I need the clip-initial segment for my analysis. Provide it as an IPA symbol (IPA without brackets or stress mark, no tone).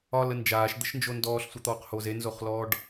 ɒ